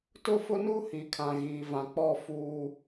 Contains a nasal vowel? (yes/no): yes